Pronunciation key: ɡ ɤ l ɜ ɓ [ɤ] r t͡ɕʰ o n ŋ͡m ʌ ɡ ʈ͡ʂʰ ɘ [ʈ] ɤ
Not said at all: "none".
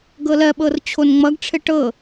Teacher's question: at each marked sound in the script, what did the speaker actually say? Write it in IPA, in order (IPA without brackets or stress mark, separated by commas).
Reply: ɤ, ʈ